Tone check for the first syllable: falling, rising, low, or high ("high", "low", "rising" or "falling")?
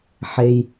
low